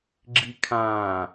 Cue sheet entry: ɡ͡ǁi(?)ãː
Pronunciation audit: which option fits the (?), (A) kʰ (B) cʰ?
A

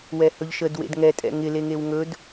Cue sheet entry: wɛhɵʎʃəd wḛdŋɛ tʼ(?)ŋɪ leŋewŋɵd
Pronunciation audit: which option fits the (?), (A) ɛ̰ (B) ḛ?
A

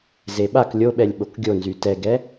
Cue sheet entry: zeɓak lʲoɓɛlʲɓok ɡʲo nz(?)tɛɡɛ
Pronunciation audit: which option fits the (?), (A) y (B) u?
A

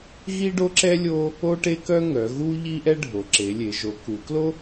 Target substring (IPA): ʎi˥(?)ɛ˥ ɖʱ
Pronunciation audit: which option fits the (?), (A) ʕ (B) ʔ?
B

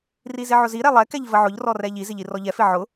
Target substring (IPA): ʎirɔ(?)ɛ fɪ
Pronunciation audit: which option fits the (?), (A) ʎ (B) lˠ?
A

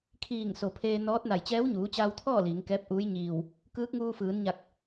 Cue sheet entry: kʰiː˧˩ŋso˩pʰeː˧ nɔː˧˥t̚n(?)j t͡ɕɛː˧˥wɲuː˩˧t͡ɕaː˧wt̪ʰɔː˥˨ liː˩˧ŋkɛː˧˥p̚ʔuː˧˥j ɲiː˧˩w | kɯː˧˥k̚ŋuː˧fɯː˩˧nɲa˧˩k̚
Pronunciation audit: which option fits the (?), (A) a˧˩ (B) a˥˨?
A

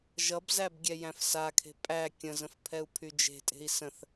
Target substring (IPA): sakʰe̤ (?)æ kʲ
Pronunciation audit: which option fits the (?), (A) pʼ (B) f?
A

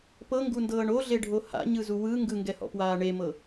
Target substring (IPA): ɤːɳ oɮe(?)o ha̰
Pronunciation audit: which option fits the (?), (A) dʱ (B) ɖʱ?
B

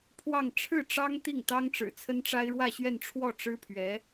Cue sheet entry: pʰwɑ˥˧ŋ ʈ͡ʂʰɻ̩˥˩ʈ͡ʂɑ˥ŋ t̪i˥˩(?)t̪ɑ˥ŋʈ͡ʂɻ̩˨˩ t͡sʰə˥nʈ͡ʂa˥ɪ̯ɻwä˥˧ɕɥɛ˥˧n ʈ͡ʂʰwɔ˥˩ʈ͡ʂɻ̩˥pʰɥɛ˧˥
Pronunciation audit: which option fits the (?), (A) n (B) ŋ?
B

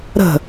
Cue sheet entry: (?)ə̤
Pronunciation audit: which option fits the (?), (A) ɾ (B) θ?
A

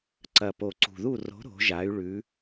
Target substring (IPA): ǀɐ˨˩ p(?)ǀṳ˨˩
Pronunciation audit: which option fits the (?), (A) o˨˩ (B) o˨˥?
A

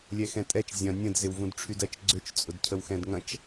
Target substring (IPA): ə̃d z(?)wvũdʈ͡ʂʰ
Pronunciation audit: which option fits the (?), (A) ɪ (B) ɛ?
A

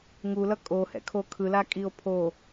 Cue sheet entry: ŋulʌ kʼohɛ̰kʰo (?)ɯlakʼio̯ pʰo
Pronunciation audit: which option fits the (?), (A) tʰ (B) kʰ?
B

